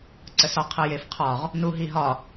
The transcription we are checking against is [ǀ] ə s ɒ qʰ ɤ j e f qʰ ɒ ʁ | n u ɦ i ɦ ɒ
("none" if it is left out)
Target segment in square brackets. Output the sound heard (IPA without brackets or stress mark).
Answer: ǀ